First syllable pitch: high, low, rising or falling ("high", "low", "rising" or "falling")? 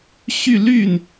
falling